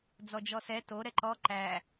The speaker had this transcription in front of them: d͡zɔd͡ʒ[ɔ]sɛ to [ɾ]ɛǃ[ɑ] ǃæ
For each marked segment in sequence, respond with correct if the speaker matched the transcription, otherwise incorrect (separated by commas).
correct, correct, incorrect